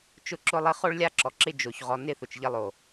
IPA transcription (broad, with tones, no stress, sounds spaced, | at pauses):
t͡ʃ ʊ˦ ǁ ʊ˦ lˠ ɪ˦ χ o˦ ɭ lʲ a˦ ǁ ɔ˨ ǁ ɪ˦ d͡ʒ o˦ ç ʁ ɔ˦ n ɪ˦˨ θ ʊ˨ t͡ʃ ʎ ɪ˦ lˠ o˨